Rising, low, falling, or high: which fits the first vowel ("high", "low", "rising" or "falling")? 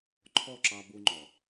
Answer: falling